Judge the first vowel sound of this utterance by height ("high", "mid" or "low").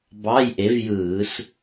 low